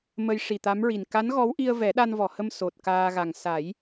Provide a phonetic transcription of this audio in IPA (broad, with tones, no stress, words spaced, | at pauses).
mə˧j ʂi˨˩t̪a˧˥mɹi˨˩n ka˧˥nɣɔ˧˥wʔi˧ə̯ vɛ˨˩˦ɗa˧nvɔ˨˩˨hə˧m so˨˩t̚kaː˧ɣa˨˩ŋ sa˨˩˦j